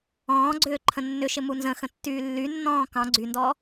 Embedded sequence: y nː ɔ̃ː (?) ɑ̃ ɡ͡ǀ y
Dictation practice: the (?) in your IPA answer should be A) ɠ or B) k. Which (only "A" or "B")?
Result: B